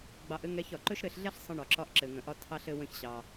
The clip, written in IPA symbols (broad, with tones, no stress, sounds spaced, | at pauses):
ɡ͡b ɑ˧ ʔ ɘ˥ ŋ ɛ˧ ç ɒ˩ ǃ ɵ˥ ʃ ɾ ɘ˧ ɬ ɮ ɛ˥ ɬ sˤ ə̃˧ ɳ ɒ˩ ǁ ɒ˧ ʔ ǁ ɘ˩ ŋ ə̃˩ ʔ ɒ˧ tʰ ɑ˧ ɬ ɘ˧ w ə̃˧ ç ɕ ɑ˩